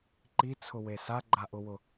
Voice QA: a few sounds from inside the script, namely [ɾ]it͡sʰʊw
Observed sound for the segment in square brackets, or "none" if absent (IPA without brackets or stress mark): ǃ